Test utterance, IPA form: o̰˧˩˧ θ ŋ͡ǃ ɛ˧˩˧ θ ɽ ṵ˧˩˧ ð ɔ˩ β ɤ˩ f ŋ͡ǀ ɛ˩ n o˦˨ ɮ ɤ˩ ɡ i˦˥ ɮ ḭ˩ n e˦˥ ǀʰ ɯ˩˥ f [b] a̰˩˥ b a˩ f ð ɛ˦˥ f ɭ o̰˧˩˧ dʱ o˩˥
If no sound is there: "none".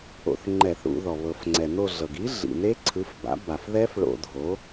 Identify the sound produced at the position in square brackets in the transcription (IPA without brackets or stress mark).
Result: b